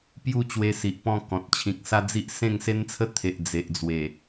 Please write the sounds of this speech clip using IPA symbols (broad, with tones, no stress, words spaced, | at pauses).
pju˥˧t͡ɕwe˧si˨ʔ pɔ̃˥˧kɔ̃˨t̚ t͡ɕʰĩ˨k̚sa˦d͡zi˦ʔ sẽ˥˧ŋse˦nt͡sʰə˦ t̪ʰe˨ʔ d͡ze˨ʔd͡zwe˨˩